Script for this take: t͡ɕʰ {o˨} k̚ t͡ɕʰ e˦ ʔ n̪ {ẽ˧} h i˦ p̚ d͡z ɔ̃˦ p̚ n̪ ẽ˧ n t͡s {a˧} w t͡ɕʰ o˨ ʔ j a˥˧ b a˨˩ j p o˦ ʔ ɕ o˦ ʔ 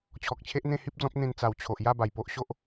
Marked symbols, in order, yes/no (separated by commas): no, no, no